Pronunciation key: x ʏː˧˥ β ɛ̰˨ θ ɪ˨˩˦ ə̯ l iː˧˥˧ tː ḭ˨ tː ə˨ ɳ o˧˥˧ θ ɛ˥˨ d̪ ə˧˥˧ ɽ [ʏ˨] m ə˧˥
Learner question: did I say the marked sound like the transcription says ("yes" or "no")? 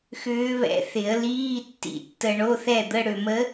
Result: yes